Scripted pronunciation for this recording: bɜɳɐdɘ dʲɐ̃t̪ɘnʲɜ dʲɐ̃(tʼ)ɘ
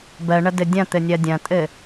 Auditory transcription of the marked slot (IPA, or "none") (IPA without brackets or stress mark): tʼ